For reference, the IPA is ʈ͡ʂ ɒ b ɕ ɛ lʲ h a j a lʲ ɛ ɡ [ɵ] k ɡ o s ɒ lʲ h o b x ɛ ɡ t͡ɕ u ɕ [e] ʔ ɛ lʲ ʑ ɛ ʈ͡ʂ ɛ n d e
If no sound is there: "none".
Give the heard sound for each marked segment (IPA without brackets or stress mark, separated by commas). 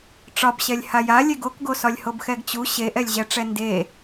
o, e